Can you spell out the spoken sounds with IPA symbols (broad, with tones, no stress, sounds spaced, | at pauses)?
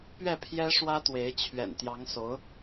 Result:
p ɥ ɛ˥˩ pʰ j ɛ˥ ʂ w ä˥ t̪ w e˧˥ ɪ̯ t͡ɕʰ ɥ ɛ̰˨˩ n t̪ j ɑ˧˥ ŋ s o˧˥ ʊ̯